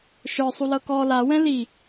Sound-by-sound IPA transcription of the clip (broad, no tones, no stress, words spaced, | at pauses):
ʃə˞sˤulɤ kɔ lawɛ̃ li